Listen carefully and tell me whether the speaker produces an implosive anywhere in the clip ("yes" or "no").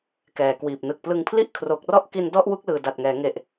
no